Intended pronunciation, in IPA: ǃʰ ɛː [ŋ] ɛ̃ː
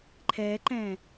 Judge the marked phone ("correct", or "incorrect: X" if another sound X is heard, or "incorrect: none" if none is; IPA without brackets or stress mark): incorrect: ǃ